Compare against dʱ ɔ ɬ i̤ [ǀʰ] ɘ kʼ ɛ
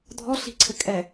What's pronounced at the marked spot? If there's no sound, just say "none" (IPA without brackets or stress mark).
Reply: ǀʰ